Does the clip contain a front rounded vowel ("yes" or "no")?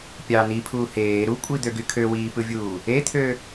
yes